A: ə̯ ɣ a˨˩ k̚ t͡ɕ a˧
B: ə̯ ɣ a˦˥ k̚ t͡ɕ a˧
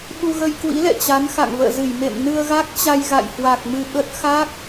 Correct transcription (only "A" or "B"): B